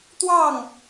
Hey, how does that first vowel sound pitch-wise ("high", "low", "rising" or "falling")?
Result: falling